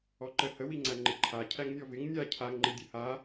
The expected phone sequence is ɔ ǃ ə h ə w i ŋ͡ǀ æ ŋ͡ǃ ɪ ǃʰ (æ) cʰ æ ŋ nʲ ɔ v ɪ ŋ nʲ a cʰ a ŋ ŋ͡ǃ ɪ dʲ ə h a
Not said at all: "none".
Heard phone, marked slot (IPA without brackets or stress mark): a